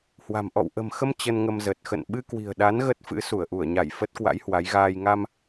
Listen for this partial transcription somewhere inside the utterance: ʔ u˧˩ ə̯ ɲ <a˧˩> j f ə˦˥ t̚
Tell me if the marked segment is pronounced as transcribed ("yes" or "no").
yes